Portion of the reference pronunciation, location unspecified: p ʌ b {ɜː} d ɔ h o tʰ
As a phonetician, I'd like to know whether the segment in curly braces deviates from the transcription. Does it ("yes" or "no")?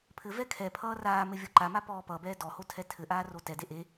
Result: yes